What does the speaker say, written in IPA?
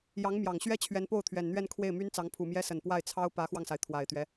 jɑ˧˥ŋmjɑ˨˩ŋɕɥɛ˥ t͡ɕʰɥɛ˧˥npo˥˩ʊ̯t̪ʰɥɛ˨˩nn̪ɥɛ˥˧n kʰwe˥˩ɪ̯my˥nt͡sɑ˧˥ŋ pʰu˨˩mjɛ˥sə˨˩n pwa˥˩ɪ̯ t͡sʰɑ˥ʊ̯ pä˧˥xwɑ˧ŋsa˩ɪ̯ t̪ʰwa˨˩ɪ̯t̪ɥɛ˦

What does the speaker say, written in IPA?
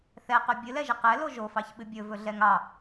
θɛqɵ bʲɨlɛʒɨ qɛlo ʒofɑçɓɨ bʲɵvɵɮɛŋ ɑ

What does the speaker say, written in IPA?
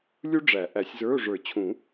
lʲu˥ɖ͡ʐæ˨˩˦ʔæ˨˩˦sʲzə˞˧˥˧ʊ̯ ʐə˞˨˩˦t͡ɕʰũ˨˩˦

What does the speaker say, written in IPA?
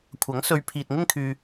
kʷʰɐ˨˥ŋ sɵ˧ɥ pʰiː˨t̚ŋɪ˥ŋkʰyː˧

